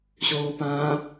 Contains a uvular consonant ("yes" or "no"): no